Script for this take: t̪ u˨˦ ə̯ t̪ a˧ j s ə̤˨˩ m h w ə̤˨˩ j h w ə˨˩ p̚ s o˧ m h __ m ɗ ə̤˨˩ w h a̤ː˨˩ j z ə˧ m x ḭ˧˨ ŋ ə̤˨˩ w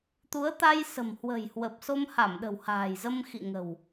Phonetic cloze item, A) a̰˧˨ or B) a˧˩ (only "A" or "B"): B